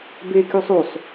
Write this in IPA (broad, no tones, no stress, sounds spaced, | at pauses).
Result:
b e k y sˤ u sˤ